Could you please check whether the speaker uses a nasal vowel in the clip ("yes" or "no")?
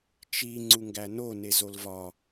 no